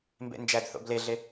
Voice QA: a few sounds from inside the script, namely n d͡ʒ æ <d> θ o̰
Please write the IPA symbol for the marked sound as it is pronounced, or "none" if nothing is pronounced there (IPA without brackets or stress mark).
d